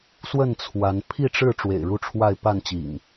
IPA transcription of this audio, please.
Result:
s w ə˥˨ n t͡sʰ w a˨˦ n pʰ i˥˨ ʈ͡ʂ ɻ̩˥˨ ʈ͡ʂ w ḛ˨˩ ɪ̯ ɻ u˥˨ ʈ͡ʂʰ w a˥˨ ɪ̯ p a˥˨ n t͡ɕ ḭ˨˩ ŋ

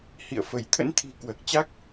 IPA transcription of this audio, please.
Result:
h ḭ˧˨ ə̯ f ə˧˩ j t̪ʰ ə̰˧˥ n t̪ʰ i̤˨˩ k w əː˨˩ k̚ t͡ɕ a˦˥ k̚

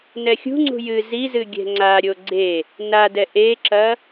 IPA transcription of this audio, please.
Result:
n ɛ xʲ ṳ ŋ͡ǀ ṳ j ɨ z i z ɨ ɡʲ ɛ̤ ŋ͡ǀ a ɾʲ o ɡ͡ǀ e | n a d ɛ ʔ e ǁ ɐ

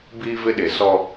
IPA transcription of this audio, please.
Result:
b iː˦ v ɪ˦ ɗ e˨ s ɔ˦

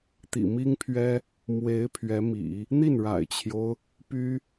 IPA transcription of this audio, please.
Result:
t̪ ḭ˨˩ m i˥ ŋ pʰ ɥ ɛ˥ | m w e˧˥ ɪ̯ pʰ ɥ ɛ˧˥ m ḭ˨˩˦ | n̪ i˥˩ n ɻ a̰˨˩ ɪ̯ t͡ɕʰ j o˦ ʊ̯ | p y˥

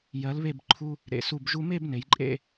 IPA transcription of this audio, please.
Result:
j ɜ˩˧ l β e˧˩ b ǃʰ u˧ | ɾ ḛ˩˧ s u˧˩ b ʒ u˧ m e˥˧ b n e˩˧ j ǃʼ ḛ˥˧

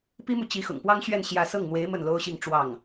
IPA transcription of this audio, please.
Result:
p i˥ m u˨ t͡ɕ i˧˥ x ʊ̰˨˩ ŋ p w ɑ˥ ŋ ɕ ɥ ɛ˥˧ n ɕ j ä˥˧ s ɤ˥˩ ŋ n̪ w e˧˥ ɪ̯ m ə˥˩ n l o˥ ʊ̯ ɕ i˥˧ ŋ ʈ͡ʂ w ɑ˥˩ ŋ

